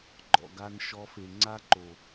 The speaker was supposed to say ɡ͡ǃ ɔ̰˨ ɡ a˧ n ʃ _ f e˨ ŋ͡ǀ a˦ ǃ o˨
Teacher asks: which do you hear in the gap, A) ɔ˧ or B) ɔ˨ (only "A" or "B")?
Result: A